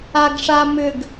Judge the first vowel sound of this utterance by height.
low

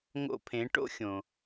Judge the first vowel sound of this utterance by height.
mid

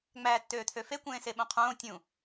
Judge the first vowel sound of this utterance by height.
low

